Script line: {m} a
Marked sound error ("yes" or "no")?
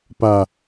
yes